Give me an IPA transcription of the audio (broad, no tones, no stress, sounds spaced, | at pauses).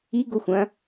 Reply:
i ɡ o xʷ ɐ̃